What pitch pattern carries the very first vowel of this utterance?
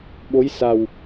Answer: rising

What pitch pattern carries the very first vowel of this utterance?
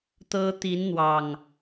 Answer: high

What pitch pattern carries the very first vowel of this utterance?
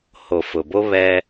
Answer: low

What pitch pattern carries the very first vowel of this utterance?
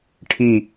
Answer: falling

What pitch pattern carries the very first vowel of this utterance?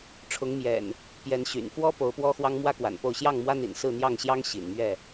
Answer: rising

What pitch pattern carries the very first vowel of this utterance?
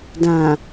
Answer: low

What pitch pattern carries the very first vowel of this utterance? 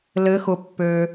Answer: rising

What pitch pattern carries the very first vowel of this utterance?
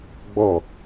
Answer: falling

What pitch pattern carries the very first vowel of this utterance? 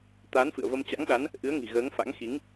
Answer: rising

